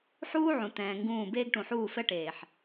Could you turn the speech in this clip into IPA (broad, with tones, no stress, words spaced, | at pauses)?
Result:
ħuː˦ʕũ˨ t̪ɛ̃ː˨ ŋɡũː˦˨ beː˦ɡʈũ˨ħuː˦˨ fɛ˦ʈeː˨ħ